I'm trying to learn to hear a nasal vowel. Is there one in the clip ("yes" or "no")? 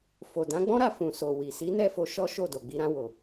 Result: yes